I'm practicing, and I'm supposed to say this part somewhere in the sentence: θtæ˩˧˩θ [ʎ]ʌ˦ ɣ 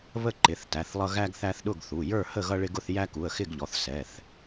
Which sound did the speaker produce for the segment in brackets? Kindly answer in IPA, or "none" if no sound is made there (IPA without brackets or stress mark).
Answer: lˠ